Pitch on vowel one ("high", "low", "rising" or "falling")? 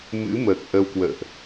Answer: rising